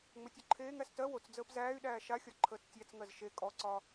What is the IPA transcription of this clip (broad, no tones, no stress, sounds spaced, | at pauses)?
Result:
ŋ͡m ə tʲ o ǃʰ eː ŋ æ s t ɜ w o t͡s d͡z əː p z æː y̯ ɗ æː ʃ a xʲ ɒ ǃʰ əː t͡s tʲ æ t͡s ŋ ɜ z ʃ e kʼ ɔ ǀ ɒ